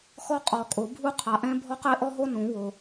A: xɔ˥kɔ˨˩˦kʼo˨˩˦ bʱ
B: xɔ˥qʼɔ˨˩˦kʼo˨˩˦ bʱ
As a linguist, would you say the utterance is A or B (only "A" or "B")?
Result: B